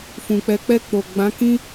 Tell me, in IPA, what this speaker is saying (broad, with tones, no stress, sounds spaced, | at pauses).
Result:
f ũ˨ k͡p ɛ˨˦ k͡p ɛ˧ k͡p o˨ ɡ͡b ã˨˦ k ĩ˦